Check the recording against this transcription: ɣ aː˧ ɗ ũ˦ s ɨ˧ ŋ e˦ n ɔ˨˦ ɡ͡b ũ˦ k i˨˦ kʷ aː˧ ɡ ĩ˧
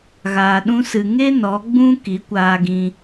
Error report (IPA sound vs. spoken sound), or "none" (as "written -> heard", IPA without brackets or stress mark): none